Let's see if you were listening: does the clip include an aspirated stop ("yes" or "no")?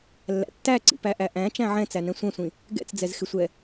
no